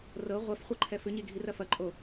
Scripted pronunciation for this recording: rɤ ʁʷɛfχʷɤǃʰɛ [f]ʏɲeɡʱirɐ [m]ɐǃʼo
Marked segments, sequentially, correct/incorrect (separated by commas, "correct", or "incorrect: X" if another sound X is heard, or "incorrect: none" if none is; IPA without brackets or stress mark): correct, incorrect: f